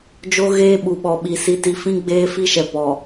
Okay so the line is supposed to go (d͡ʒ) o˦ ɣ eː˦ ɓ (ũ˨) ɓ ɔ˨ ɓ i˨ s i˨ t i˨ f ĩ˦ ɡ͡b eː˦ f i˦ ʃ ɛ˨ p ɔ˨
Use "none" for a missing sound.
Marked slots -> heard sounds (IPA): d͡ʒ, u˨

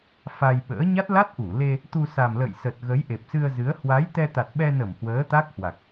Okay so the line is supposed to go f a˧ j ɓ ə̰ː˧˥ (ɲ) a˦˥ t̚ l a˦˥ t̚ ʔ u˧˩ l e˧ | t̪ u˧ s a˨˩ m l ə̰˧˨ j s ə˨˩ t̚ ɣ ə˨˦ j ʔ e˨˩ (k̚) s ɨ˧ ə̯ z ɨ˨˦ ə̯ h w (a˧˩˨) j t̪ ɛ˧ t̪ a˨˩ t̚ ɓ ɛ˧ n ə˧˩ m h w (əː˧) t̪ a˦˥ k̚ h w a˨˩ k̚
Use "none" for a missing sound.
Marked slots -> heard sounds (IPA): ɲ, p̚, a˨˦, əː˨˦

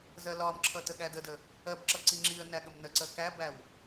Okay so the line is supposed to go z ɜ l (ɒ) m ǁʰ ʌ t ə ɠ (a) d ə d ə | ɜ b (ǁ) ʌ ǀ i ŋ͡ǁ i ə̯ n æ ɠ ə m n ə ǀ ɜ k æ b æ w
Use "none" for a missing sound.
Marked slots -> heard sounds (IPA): ɒ, æ, ǁ

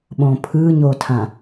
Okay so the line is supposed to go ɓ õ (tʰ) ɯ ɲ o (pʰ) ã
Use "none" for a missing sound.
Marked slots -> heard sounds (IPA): pʰ, tʰ

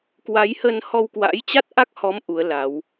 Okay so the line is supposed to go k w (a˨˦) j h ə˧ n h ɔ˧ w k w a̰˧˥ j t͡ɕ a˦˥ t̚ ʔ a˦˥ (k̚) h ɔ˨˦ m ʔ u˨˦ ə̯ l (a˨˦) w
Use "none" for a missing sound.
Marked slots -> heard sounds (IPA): a˨˦, k̚, a˨˦

